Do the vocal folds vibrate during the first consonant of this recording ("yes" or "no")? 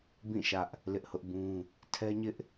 yes